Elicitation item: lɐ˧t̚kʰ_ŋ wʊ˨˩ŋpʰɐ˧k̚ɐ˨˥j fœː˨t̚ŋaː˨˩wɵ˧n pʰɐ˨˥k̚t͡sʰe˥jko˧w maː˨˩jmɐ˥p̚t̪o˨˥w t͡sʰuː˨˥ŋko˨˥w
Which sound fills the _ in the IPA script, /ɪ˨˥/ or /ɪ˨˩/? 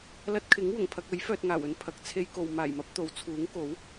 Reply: ɪ˨˥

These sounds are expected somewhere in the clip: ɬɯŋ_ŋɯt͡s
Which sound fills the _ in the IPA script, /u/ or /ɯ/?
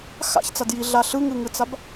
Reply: ɯ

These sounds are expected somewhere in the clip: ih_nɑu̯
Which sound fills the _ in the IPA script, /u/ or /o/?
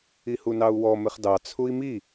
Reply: u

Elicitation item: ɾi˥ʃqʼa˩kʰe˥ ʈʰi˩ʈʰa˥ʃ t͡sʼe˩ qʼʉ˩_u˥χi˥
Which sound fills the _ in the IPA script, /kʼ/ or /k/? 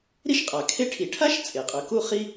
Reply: k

